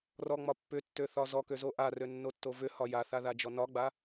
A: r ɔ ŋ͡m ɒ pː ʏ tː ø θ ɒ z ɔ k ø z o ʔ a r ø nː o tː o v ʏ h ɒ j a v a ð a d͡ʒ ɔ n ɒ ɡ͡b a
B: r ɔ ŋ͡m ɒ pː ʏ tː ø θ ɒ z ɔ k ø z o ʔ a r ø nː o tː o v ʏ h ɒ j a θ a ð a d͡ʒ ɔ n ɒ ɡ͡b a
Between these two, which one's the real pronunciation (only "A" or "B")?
B